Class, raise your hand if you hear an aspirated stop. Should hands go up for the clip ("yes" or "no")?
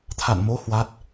yes